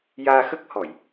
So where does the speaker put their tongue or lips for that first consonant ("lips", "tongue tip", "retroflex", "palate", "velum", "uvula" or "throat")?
palate